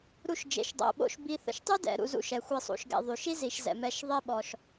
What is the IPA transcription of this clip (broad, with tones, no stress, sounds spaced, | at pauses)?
ɾ u˨ ʃ d͡ʒ ḛ˩ ʃ dˤ o̰˩ ɓ o̰˨ ʃ b i˨ θ ə̰˩ ʃ tˤ y˥ d ɛ̰˩ ɾ ṵ˨ z ṵ˨ ʃ ɛ˩ xʷ e˨ sˤ ṵ˩ ʃ ɡ ɛ̰˨ ðˤ y˩ ʃ i˥ z i˨ ʃ z ɛ̰˩ m ɛ˨ ʃ ðˤ e˦ ɓ ɔ˨ ʃ